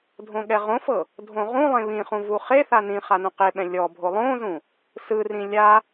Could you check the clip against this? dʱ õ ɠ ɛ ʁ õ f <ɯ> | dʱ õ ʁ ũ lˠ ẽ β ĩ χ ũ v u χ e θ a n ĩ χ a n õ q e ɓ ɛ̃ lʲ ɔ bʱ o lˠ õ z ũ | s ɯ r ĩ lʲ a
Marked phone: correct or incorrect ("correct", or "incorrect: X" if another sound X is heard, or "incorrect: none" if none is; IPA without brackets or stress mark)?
incorrect: ɤ